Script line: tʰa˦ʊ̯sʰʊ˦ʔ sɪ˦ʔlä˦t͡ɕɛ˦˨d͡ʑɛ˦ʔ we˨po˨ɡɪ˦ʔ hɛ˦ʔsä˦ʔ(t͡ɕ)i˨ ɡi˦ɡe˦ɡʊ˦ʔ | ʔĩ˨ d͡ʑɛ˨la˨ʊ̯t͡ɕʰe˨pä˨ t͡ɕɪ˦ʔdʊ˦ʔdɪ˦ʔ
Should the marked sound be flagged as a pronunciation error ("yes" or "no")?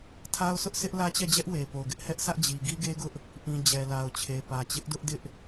yes